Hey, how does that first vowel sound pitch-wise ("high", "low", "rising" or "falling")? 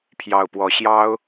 low